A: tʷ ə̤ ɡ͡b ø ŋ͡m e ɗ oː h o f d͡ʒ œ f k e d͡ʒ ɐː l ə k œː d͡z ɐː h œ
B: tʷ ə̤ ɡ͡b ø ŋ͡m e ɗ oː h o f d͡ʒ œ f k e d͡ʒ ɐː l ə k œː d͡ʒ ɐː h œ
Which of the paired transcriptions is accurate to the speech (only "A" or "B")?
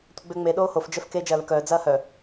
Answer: A